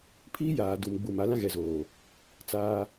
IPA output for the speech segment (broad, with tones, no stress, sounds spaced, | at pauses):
pʰ iː˦ j aː˨ d u˨ m ɡ͡b u˨ m a˨˦ l ã˦ ɣ ɛ˨ z oː˨ | t͡s aː˦